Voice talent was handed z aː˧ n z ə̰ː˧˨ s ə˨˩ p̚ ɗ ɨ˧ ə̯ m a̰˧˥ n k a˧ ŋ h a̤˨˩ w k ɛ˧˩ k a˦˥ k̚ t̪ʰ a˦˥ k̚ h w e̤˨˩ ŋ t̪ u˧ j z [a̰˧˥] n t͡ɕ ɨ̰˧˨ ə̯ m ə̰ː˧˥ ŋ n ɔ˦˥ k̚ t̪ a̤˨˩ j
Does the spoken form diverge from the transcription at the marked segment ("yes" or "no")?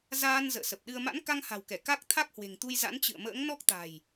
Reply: no